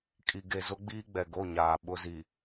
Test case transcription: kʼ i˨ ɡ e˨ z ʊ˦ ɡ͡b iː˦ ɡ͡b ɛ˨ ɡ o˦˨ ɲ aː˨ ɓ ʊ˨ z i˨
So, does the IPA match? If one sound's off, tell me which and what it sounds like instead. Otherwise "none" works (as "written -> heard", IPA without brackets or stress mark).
none